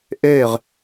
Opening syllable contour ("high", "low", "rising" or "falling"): falling